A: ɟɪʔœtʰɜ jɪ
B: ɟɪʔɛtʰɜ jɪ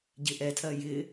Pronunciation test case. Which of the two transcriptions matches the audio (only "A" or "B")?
B